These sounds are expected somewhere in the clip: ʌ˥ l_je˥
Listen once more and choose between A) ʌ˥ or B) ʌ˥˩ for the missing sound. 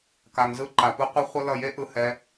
B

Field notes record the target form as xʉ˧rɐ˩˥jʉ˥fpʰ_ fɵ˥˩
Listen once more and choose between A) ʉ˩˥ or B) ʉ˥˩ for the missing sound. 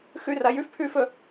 B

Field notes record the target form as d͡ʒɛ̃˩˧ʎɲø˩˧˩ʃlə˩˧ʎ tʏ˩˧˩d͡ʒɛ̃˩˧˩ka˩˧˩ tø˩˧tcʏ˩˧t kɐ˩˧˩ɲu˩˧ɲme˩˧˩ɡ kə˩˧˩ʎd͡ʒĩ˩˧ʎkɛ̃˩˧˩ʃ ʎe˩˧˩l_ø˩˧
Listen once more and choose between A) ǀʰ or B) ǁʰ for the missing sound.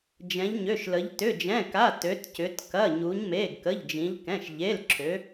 B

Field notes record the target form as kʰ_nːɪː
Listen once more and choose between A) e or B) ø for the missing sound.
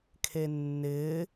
A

